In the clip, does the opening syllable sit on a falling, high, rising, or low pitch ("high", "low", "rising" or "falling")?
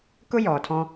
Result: high